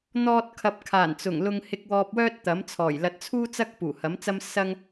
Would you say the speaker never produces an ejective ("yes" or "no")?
yes